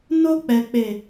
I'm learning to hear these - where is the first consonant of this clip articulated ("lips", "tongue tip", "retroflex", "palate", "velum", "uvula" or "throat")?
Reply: tongue tip